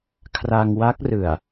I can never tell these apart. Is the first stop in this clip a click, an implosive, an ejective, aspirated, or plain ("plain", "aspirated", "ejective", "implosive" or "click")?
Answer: aspirated